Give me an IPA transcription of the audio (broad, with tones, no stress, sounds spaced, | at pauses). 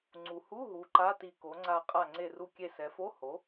ŋ͡ǀ u˩ h u˧˥˧ ɦ u˩˧ ǃ a˧˥˧ t i˧˩ k o˩˧ ŋ͡ǀ a˧˩ qʼ a˧˩ ŋ͡ǀ e˧˩ r u˧˩ kʲ e˧˩ s ɛ˩˧ f o˧˥˧ h o˩˥